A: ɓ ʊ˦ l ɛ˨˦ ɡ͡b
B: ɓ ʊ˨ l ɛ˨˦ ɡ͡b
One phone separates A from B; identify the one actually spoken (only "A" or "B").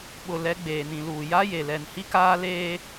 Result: B